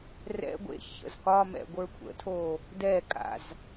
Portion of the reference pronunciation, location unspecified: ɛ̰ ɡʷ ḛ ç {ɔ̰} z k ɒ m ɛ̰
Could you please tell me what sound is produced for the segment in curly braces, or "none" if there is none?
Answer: ə̰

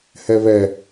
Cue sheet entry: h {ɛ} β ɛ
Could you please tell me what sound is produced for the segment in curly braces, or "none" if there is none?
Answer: ɛ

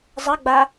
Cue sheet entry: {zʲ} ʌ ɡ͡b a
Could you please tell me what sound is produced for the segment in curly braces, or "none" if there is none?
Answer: zˤ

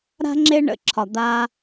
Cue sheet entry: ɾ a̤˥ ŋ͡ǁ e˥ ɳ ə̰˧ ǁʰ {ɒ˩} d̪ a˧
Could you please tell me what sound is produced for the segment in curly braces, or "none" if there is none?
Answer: ɒ˩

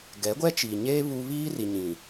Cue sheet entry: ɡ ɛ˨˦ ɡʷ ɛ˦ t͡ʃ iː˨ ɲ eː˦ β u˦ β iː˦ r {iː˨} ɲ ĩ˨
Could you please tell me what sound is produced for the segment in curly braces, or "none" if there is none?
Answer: i˨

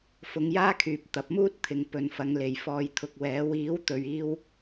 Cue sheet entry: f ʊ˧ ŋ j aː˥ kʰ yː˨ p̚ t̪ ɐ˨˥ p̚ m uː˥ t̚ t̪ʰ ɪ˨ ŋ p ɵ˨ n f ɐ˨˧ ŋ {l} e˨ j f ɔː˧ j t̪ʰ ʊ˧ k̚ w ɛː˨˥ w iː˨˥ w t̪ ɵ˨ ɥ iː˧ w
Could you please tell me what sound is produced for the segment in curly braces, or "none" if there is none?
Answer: l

